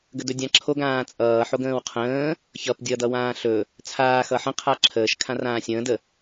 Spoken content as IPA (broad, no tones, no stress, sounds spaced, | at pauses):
ɡ ə d ɵ dʲ ã ǁʰ o ɡ ãː t͡sʼ ʌː ħ o ɡ ə̃ː w qʰ ə̃ː | ç ʌ p dʲ ʌ d ʌ w ãː ɬ ɵ | t͡sʰ aː x ʌ ħ ə̃ qʰ a ǁʰ əː ʃ kʰ ã r ãː sʲ ə̃ː d ə